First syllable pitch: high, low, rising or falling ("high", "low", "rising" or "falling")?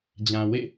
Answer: low